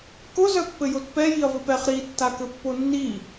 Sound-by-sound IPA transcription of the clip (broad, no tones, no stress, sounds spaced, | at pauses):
k ʊ z œ pː ɘ j o t p ɛ j i ɐ̯ v ɘ p ɛ χ ɾ i tː a k ɘ pː o nː i